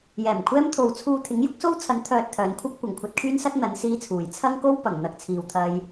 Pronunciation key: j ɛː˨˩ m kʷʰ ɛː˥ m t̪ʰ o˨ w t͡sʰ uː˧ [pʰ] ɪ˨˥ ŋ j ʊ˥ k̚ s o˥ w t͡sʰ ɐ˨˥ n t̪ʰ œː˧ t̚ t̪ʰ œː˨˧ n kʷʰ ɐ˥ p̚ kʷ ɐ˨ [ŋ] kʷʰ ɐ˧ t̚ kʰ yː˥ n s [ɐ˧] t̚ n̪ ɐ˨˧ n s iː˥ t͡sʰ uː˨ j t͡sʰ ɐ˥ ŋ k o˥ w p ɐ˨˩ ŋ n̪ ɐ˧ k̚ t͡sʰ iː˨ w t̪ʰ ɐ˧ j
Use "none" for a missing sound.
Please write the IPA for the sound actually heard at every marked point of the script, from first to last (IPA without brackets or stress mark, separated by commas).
t̪ʰ, ŋ, ɐ˥